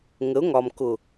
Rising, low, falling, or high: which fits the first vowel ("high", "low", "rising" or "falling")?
rising